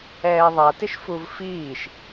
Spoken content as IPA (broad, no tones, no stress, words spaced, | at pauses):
ɛːðˤatɪʃfuv fiːʃ